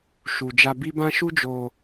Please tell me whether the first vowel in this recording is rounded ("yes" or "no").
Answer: yes